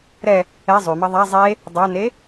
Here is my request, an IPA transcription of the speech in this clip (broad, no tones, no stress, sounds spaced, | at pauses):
ɾ ɛ | ɛ zˤ y m ɐ ðˤ a zˤ e | dˤ a n e